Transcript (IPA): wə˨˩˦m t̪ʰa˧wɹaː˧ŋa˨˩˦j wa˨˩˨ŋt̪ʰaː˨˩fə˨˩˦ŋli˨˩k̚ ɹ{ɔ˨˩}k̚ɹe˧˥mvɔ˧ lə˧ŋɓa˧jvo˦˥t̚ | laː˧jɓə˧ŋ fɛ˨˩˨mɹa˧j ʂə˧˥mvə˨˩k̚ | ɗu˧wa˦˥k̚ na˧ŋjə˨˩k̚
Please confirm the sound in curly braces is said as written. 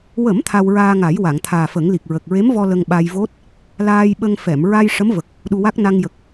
no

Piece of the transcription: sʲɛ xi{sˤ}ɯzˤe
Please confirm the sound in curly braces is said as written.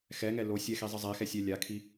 no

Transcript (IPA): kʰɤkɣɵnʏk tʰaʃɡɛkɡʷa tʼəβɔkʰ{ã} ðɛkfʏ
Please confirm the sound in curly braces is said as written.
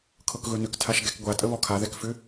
no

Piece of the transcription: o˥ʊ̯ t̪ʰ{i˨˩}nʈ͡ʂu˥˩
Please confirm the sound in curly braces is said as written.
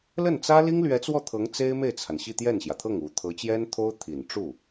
yes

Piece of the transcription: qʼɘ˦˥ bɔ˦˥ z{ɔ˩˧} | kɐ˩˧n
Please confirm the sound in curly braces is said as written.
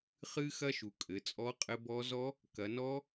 no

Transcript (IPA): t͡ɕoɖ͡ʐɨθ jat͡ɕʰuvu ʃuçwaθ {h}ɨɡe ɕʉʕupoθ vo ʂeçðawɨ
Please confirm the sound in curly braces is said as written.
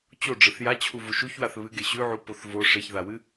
no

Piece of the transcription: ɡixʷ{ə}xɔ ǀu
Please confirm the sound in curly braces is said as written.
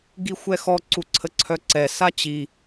no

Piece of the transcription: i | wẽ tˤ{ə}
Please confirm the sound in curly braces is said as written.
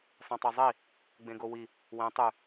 no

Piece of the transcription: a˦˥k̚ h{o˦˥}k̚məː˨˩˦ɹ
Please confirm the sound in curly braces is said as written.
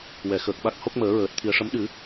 yes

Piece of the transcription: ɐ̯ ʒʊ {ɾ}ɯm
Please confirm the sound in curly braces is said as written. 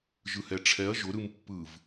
yes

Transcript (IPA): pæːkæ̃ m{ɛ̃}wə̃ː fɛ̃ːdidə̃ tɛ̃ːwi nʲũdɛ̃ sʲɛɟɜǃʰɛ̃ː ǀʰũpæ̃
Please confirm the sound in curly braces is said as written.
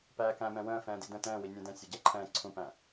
yes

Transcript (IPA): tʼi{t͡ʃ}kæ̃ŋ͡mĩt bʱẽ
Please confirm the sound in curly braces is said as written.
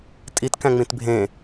no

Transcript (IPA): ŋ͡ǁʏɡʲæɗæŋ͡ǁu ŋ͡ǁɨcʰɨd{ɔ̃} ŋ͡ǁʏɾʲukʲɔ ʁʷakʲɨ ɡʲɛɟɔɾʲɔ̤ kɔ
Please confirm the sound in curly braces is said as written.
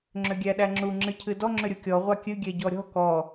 no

